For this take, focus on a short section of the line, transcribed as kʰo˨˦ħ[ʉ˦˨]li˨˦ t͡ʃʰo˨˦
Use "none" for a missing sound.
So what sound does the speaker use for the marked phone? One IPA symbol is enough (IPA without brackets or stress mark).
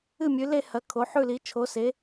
ʉ˦˨